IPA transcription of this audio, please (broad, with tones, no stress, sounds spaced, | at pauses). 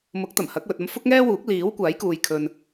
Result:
m ʊ˨˥ k̚ t̪ ɐ˨˩ m h ɐ˨˥ k̚ w ɵ˨ t̚ ɐ˧ m f ʊ˥ k̚ ŋ ɛː˥ w uː˨˥ k̚ l iː˨˥ w kʷ aː˨˥ j k uː˨ j kʰ ɵ˨ n